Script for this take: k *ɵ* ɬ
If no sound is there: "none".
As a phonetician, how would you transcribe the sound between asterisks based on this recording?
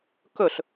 ɵ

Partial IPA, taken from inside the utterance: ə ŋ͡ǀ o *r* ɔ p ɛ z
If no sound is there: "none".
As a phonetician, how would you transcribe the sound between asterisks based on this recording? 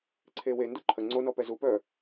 n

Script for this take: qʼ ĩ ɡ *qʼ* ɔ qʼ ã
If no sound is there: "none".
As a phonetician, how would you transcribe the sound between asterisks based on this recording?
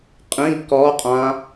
k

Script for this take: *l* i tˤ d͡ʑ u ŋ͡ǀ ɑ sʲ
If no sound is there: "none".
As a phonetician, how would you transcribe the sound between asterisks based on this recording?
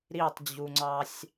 ɾ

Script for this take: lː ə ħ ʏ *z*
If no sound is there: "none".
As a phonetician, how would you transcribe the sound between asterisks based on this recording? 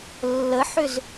z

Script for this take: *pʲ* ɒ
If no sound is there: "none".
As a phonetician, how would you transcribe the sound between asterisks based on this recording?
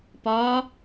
p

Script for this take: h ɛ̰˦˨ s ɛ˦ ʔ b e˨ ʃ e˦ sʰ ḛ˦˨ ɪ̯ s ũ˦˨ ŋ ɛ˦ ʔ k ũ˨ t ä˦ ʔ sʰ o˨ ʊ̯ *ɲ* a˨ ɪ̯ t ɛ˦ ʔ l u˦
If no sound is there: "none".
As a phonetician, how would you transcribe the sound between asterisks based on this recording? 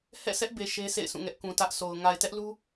ŋ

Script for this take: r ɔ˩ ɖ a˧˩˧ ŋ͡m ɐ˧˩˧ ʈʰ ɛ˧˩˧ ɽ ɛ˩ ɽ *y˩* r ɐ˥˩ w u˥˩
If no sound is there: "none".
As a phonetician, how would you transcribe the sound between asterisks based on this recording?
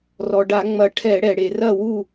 e˩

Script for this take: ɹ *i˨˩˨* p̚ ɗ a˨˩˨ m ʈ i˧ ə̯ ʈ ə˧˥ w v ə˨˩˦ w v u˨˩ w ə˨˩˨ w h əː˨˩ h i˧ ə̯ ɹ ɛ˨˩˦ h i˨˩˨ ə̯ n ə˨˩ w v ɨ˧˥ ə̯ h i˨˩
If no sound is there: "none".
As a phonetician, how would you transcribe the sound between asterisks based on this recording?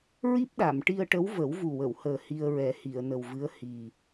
i˦˥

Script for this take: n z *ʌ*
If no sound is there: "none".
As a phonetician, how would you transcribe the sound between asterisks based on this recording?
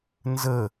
ə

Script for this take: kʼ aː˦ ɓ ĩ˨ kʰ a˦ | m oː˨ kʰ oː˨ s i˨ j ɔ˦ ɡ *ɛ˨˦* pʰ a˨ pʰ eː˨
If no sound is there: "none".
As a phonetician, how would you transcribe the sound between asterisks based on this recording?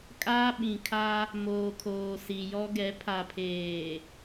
ɛ˨˦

